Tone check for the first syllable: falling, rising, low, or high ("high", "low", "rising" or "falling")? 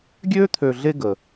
high